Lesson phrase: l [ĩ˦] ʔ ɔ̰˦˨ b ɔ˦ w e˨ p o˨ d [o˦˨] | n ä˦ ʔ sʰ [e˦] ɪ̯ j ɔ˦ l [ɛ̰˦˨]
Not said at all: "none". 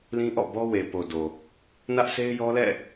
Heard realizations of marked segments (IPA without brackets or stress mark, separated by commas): ĩ˦, o˨, e˦, ɛ̰˦˨